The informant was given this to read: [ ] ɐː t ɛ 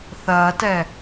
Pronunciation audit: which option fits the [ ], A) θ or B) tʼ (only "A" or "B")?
A